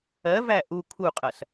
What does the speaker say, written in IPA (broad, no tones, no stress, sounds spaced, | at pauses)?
ɜ v æ ʔ u kʰ u qʼ ɐ s